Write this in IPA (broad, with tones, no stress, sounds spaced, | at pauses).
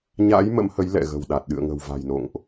ɲ a̰˧˥ j m ə̰˧˥ m h ə˨˦ j l ɛ̰˧˨ ɣ ə̤˨˩ w ɗ a˨˩ t̚ ɗ ɨ̰˧˨ ə̯ ŋ ə̤˨˩ w v a̤˨˩ j n o̰˧˨ ŋ ʔ